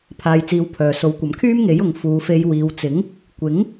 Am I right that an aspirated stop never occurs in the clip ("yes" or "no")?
no